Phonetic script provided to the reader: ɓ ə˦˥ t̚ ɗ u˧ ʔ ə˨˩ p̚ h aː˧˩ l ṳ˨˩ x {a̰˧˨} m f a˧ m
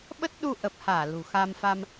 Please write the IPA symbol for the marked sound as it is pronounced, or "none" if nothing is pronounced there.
a˧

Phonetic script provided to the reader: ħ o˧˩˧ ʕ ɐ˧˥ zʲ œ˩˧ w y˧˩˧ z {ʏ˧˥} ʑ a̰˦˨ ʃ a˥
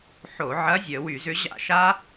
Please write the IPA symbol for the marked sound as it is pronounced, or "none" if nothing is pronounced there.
ʏ˧˥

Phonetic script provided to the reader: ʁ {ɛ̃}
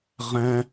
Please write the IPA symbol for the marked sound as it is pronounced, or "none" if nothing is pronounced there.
ɛ̃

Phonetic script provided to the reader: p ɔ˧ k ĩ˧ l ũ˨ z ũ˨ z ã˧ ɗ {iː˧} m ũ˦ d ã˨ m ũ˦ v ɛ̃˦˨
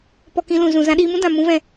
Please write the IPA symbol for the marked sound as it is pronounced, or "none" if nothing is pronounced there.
iː˧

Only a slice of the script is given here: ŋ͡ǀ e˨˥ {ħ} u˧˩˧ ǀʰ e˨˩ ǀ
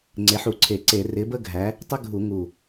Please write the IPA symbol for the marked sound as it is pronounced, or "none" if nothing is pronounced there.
ħ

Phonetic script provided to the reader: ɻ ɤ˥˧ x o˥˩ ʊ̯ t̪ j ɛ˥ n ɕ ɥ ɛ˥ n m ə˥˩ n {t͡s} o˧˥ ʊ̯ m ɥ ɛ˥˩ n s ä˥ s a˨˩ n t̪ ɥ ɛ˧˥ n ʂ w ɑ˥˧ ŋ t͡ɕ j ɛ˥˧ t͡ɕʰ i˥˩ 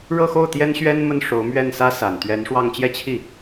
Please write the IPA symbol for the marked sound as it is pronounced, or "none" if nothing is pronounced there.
ʂ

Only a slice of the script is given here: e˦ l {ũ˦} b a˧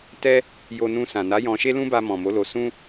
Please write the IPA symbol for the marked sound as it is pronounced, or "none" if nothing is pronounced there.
ũ˦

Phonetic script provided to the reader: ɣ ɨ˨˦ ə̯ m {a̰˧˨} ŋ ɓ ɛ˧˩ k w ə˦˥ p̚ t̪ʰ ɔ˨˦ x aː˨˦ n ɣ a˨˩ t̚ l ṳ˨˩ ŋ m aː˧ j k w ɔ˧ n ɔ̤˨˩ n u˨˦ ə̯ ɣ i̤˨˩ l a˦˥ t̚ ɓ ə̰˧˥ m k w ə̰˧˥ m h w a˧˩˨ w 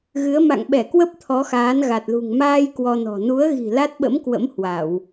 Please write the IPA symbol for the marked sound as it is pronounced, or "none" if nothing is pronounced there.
a̰˧˨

